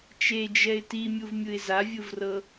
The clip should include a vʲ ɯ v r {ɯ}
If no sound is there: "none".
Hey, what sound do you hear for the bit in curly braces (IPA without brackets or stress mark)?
ɤ